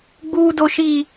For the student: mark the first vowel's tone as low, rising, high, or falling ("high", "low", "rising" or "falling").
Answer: high